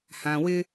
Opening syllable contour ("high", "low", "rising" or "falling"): low